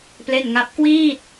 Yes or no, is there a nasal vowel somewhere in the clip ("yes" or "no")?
no